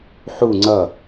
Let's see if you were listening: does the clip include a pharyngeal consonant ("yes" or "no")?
yes